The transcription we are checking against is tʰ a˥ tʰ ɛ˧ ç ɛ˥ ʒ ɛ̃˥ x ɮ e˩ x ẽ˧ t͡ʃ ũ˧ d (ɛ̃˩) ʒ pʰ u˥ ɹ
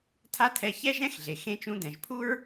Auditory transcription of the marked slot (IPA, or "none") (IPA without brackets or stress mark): ɛ̃˩